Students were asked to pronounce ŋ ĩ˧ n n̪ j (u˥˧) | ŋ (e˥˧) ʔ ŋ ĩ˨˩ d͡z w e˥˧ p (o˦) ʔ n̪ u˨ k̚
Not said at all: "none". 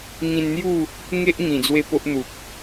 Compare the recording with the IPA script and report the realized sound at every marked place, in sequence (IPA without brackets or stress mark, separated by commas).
u˥˧, e˦, o˦